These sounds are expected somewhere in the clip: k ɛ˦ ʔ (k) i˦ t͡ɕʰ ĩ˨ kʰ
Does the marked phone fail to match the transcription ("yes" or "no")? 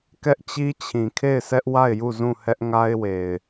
yes